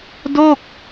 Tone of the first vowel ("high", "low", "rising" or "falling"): falling